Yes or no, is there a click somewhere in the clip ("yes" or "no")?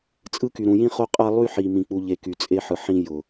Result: no